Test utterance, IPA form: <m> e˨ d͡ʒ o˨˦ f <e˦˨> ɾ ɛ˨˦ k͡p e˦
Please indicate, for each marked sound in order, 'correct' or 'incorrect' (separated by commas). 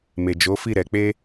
correct, incorrect